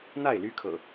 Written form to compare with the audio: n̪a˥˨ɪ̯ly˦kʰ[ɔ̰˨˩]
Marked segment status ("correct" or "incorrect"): incorrect